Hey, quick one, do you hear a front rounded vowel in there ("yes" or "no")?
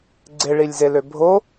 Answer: yes